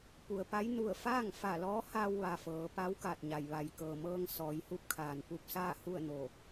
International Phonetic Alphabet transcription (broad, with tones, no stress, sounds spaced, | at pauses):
p u˩ ə̯ p a˧˥ j n u˧˩ ə̯ f aː˥˨ ŋ f a˧˩ l ɔː˧˥ h a˧ w ʋ a˩ f ɤː˩˧ p a˧˥ w k a˧˩ t̚ ɲ a˩ j ʋ a˩ j k ɤː˩ m ɤː˧ ŋ s ɔː˩˧ j h u˧ p̚ kʰ aː˩ n p u˧ p̚ s aː˥˨ h u˥˨ ə̯ n oː˧˩